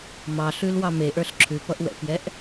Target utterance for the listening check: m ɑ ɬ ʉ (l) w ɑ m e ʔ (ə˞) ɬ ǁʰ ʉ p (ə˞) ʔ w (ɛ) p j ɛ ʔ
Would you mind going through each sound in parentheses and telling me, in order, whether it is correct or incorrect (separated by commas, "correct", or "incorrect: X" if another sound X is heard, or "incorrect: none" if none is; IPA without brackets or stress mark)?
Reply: correct, correct, incorrect: ʌ, incorrect: ɛ̰